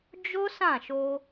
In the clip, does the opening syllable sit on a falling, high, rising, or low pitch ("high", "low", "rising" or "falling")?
high